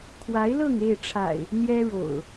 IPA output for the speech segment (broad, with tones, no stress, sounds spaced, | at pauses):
kʰ w a˨˦ ɪ̯ l ɤ˥˨ ŋ e˥˨ ɪ̯ ʈ͡ʂʰ a̰˨˩ ɪ̯ | n̪ j ɛ˦ ɻ o̰˨˩ ʊ̯